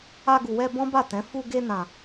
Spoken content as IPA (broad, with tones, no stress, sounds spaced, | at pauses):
a˧ ɡ u˨ w ɛ˧ b ɔ̃˦ b a˦˨ t ɛ̃˨˦ f u˧ ɡ e˧ n ã˨